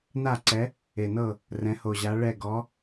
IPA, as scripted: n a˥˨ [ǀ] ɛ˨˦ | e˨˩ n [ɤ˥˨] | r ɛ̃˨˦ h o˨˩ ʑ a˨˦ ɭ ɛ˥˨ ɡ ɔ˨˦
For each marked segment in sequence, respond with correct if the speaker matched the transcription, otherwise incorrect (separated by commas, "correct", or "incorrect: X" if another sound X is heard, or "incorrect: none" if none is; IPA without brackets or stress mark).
correct, correct